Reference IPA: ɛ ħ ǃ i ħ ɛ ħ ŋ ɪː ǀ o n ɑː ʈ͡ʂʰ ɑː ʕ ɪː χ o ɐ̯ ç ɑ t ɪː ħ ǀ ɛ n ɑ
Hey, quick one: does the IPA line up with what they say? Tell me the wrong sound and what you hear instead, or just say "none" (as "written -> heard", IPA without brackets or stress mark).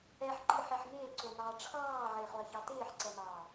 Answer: none